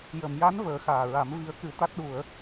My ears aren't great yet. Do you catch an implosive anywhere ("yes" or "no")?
yes